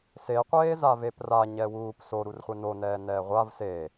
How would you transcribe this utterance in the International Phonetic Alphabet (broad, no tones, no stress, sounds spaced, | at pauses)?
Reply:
s e qʷ eː z a v e p r a ɲ ɛ w uː p s o ɾ u r χʷ ɛ n o n ɛː n ɛː ʁʷ a v s e